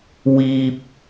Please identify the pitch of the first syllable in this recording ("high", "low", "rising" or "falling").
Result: low